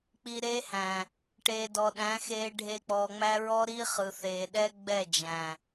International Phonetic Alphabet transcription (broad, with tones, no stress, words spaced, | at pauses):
k͡pi˨ ɾe˦hæ̃˨ | ʈeː˨dɔ˨ɗæ̃˨˦ xeː˨ɖʱe˨ k͡pɔː˨ŋ͡mæ˦ɹɔ˦ ɾi˦χɯ˨θeː˨ ɗɛ˦ ɡ͡bɛ˦˨d͡ʒæ̃˨